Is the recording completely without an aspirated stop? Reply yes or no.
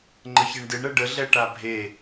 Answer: yes